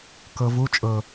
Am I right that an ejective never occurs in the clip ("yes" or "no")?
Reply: no